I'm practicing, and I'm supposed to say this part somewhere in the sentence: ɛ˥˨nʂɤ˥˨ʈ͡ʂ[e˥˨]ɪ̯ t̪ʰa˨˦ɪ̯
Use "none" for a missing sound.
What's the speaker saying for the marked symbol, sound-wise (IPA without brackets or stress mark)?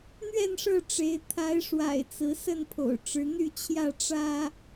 e˨˦